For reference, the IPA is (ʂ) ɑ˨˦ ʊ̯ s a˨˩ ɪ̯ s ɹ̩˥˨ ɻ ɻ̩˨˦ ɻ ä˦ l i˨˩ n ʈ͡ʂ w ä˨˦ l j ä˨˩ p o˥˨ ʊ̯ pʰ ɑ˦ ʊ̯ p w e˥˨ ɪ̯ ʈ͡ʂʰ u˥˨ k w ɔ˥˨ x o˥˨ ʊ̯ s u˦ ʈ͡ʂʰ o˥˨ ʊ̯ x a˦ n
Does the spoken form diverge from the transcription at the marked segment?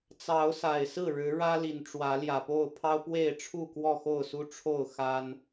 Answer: yes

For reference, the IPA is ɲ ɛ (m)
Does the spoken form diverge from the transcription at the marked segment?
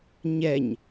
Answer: yes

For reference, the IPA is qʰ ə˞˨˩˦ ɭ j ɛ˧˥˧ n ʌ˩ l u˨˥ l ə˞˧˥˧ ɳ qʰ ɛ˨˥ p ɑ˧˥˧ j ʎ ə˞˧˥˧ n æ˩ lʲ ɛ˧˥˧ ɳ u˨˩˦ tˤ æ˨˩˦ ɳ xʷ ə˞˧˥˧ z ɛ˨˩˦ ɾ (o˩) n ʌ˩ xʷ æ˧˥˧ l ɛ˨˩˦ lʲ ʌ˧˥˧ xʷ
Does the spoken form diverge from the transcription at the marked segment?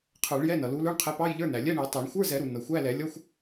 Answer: yes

